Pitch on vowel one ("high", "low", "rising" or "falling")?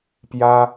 high